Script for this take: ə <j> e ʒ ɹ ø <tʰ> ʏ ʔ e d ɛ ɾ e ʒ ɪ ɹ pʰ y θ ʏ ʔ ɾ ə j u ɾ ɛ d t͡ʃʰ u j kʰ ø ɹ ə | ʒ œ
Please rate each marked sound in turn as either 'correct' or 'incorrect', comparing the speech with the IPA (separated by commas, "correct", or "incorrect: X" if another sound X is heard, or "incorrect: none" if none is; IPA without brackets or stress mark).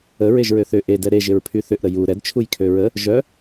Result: incorrect: ɹ, incorrect: θ